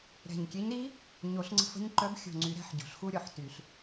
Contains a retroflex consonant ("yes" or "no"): no